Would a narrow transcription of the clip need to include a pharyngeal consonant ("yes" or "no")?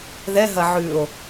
yes